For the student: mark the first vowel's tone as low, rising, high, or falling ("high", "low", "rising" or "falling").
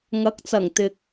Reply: rising